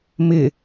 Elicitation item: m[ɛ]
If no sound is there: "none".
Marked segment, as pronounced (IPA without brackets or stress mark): ɪ